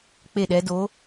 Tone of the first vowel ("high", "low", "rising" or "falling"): falling